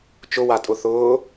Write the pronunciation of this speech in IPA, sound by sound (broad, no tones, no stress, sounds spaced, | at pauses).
t͡ʃ ʊ w a tʼ ʊ θ ʊː